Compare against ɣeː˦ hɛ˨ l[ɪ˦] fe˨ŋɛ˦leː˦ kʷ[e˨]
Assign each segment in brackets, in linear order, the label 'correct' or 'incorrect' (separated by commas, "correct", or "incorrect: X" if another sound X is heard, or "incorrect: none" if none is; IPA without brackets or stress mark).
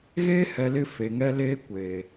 correct, incorrect: eː˨